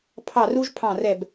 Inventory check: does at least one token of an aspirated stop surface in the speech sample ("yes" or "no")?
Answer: yes